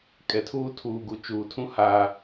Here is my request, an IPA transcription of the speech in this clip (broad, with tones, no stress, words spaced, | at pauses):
kʼɛ˨tʰuː˦ tʰuː˨ɡu˨ t͡ʃuː˨tʰũ˦ ha˦